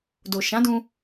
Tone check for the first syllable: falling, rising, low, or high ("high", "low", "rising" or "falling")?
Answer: low